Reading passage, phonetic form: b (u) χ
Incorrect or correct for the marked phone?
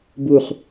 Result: correct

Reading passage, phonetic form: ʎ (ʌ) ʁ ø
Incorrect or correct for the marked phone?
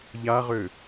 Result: incorrect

